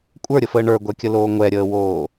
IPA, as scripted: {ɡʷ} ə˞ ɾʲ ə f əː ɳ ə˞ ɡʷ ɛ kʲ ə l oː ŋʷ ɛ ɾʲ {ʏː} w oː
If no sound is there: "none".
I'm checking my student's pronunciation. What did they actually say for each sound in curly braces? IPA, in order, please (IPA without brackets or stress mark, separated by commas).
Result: kʷʼ, əː